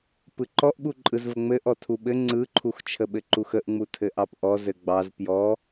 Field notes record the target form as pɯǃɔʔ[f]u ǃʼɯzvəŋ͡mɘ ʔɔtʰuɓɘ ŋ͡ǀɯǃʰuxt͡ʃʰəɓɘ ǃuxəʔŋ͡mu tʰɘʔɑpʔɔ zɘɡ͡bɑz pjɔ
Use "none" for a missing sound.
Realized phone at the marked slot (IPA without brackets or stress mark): ɓ